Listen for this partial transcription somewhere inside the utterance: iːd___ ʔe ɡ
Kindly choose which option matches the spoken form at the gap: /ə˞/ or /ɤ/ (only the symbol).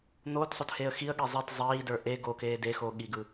ə˞